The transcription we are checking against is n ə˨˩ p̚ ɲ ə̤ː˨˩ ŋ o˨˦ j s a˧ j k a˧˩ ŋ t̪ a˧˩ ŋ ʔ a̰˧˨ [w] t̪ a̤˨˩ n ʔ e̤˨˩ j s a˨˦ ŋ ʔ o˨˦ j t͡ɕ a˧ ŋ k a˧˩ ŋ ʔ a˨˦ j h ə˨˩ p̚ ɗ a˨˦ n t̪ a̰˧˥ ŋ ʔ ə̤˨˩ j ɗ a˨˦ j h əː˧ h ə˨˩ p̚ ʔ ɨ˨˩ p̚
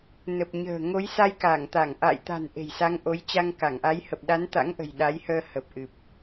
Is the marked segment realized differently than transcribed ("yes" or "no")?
yes